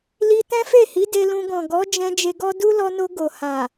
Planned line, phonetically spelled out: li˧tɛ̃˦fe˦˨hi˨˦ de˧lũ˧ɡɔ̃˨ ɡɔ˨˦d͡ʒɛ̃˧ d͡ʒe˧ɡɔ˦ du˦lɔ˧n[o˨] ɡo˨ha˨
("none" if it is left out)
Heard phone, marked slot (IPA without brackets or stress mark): o˧